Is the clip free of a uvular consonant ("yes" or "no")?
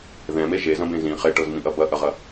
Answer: no